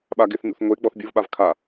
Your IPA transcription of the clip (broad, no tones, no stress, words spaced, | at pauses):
ɓaɡɪθnṵθ ŋʷe ɡ͡bɔθbʲuvɓav kʰa